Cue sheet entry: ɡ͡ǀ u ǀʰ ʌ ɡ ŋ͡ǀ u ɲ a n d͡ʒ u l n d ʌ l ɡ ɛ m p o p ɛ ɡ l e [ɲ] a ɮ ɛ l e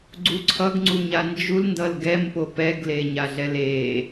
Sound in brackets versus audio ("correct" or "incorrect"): correct